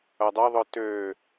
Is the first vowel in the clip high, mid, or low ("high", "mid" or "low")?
low